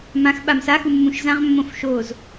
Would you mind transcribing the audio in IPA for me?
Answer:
m ã x ɓ a m s a x u mː ũ ʃ z ã ʁ mː õ f ʃ o z

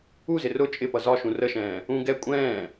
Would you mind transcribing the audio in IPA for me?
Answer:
u z ɪ r ʊ t͡ʃʼ ɪ p ʌ z ɒ ʃ ũ r ə ʃ ɛ̃ː | ũ ɡ ɛ kʷʼ ɛ̃ː

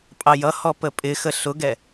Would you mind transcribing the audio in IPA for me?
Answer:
pʼ ɑ j ʌ h ɔ p ə pʼ ɪ x ə ɬ ʊ ɡ ɛ

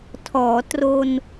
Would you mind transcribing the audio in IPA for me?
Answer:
tʰ ɔː˩˦ t r o˧ n

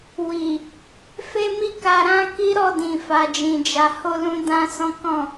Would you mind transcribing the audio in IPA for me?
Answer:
w i˨ | f e˦ m i˦˨ k a˧ ɾ ã˦ k i˦ ɾ ɔ˦˨ d ĩ˨ f a˨˦ d͡ʒ ĩ˧ d͡ʒ a˧ h o˧ l ũ˧ d ã˧ s ɔ̃˦ k ɔ̃˦˨

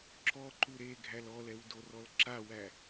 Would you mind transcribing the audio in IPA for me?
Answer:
ǁ ɔ ǃ u ɾ e ɡʱ æ l ɔ l ɛ w d o r ɔ l ǁ a w æ

